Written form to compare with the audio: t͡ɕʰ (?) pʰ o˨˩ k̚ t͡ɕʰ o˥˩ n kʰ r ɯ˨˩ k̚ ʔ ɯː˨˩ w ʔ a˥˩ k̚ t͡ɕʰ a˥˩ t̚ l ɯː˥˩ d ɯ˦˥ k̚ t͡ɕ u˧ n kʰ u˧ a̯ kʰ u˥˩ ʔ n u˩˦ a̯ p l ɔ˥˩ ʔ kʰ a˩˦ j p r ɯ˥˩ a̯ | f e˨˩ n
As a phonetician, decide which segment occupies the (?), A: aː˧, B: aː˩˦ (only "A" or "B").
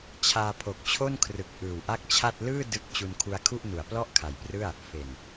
A